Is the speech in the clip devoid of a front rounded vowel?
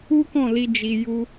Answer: yes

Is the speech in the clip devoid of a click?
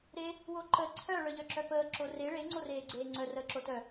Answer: no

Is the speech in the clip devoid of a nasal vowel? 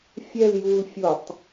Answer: yes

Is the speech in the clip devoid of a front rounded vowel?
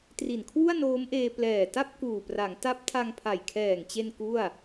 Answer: yes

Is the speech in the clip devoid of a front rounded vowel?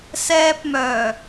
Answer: no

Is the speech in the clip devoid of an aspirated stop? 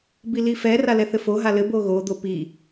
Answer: yes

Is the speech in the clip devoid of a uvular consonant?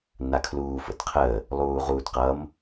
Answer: no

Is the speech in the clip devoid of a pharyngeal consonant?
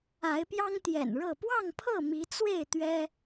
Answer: yes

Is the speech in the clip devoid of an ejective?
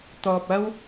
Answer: yes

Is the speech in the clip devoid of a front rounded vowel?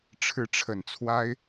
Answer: yes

